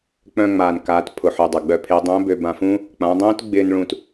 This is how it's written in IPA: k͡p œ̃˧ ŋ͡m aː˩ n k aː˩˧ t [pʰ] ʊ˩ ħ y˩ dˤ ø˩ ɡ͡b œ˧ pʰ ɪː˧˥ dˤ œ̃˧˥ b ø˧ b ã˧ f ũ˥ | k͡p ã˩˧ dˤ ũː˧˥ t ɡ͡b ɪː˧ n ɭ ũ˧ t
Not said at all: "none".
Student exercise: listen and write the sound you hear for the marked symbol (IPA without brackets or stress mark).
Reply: pʰ